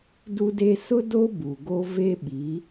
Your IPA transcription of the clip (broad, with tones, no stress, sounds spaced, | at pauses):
d u˦ d e˦ s ʊ˦ d o˦ b u˨ ɡ o˦ v e˦ ɓ i˨˦